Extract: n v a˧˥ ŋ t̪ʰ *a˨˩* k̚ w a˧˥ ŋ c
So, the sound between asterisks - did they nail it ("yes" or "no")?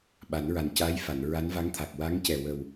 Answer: yes